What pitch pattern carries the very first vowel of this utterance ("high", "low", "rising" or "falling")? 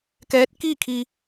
rising